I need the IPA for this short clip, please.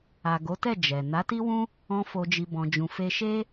a˨ɡo˨˦tɛ˦˨ d͡ʒɛ˨ na˨˦ti˦wũ˦ | ɔ̃˦fo˧d͡ʒi˧ bɔ̃˧d͡ʒũ˧ fe˧ʃe˦

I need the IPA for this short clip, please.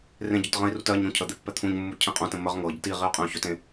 rẽɟʏtʁə̃i̯rut ɜɲ ũcʰəd̪e pːɛt̪ʰũɲmːu cʰẽqʼũtə̃ məʁ ŋɤɟət iʁiu̯ qʼɛ̃u̯çʏtẽ

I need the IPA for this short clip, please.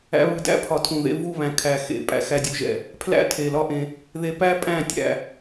æ̰˧βɯ˨dæ̰˦ pʰɒ˨tʰũ˨ðḛ˧ vu˦˨βæ̃˨ kʰæ˨ xḛ˨ pʼæ̰˧xæ˧dʲu˧ʒɛ̰˨ | pʰlæ̰˦tʰe˨ lɒ˦ʔẽ˧ | ðe˧ pæ˦pʼæ̃˦˨tʲæ̰˦˨

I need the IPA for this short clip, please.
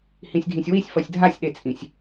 hĩsʲdʱĩsʲwisʲ fʌsʲdʱasʲɗet͡sʼĩsʲ

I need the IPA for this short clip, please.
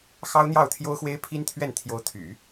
xɑ˥ʊ̯n̪jɑ˥˩ʊ̯t̪ʰjo˥ʊ̯ xwe˥ɪ̯pʰi˥nt̪ʰɥɛ˥˩n t̪ʰjo˧˥ʊ̯ t̪ʰy̰˨˩˦

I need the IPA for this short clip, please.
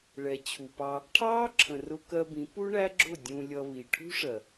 ɭɛ˨t͡ɕʰu˨pɑ˧ | ʈʰɑː˦ǁʰə̃˨ rʊ˧kɜ˧bĩ˨˦ pu˦ɳæ˦ ɡ͡ǁʊ˦˨ dʲũ˧lʲʌ˧βi˨ ʈʰṳ˦ʂɜ˨

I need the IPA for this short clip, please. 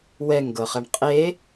wɛŋɡɤχɛɳ qʼe

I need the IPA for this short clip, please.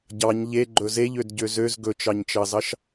ɟɑɲ ʎe ɡ͡ǃɵzeʎ ødɟøzøz ɡɵt͡ʃɑɲt͡ʃɑzɑʃ

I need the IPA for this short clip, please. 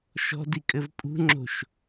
ʃɔ̤dikʼɘv pʼṳŋ͡ǁo̤ʃ

